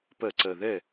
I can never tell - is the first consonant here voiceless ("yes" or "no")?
yes